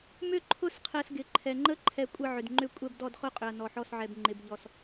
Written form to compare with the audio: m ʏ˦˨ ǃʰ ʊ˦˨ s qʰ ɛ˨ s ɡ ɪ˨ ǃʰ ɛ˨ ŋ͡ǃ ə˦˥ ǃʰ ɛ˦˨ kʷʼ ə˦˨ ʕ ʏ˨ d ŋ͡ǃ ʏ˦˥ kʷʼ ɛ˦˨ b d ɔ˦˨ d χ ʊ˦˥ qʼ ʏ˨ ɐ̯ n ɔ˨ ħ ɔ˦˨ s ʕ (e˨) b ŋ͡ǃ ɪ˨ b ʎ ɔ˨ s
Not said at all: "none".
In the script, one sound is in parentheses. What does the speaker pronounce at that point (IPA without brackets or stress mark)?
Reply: ɛ˨